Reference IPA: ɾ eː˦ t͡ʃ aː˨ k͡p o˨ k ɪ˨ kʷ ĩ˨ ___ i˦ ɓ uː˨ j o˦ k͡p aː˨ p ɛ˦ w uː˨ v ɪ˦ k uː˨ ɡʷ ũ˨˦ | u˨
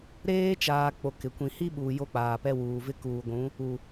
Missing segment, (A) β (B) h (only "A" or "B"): B